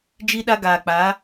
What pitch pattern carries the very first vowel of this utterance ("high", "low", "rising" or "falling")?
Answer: high